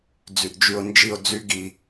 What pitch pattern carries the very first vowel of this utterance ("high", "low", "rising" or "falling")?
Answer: low